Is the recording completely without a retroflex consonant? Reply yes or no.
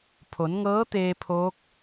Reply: yes